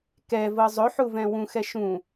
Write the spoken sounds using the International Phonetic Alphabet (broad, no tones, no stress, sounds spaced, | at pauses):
k ɛ v ɤ zˤ ɵ ħ u v ɛ̃ w ũ x ɛ ʃ ũ